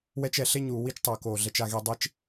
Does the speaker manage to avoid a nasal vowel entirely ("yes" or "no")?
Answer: yes